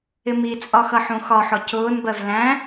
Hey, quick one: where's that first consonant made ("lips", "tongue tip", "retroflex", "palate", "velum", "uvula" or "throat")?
lips